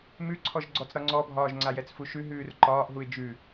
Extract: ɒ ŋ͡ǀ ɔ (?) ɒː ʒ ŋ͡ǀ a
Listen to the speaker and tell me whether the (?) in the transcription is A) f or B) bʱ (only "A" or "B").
B